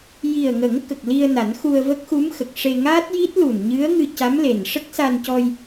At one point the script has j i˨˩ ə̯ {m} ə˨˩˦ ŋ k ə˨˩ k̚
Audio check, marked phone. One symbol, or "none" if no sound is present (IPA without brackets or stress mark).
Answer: ŋ